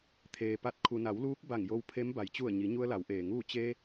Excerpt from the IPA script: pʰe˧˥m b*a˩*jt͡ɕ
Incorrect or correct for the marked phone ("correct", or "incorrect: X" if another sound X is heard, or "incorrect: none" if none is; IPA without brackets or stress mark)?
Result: correct